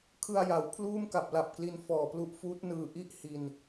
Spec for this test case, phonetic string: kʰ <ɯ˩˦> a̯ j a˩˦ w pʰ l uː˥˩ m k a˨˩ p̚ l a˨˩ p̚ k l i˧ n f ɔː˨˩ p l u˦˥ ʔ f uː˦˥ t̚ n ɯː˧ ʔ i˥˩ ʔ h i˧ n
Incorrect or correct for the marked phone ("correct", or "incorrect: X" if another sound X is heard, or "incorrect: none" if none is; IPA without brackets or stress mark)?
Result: incorrect: ɯ˧